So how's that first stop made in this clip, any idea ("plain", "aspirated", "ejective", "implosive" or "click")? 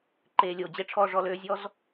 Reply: click